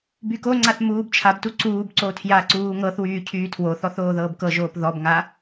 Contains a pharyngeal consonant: no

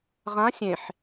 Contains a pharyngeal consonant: yes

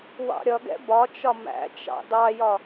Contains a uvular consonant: no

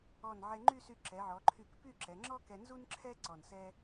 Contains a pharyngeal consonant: yes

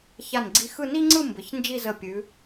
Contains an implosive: no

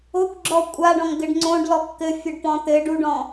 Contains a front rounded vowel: no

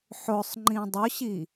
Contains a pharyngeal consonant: yes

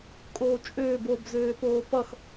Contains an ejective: yes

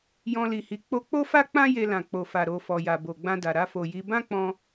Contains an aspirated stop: no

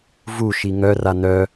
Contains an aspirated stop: no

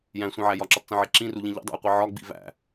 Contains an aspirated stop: no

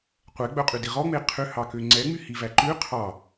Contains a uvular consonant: yes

